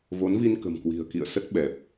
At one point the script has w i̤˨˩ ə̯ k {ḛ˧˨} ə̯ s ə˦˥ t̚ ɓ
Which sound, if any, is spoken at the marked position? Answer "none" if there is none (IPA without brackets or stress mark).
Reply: ḭ˧˨